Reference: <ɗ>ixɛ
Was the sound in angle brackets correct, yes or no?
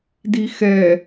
no